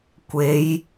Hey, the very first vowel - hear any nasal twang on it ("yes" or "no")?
no